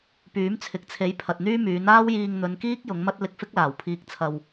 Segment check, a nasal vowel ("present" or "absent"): absent